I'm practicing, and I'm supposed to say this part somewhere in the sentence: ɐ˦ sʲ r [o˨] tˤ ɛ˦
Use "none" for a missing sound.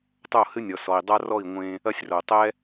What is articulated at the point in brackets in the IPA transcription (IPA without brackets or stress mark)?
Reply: o˨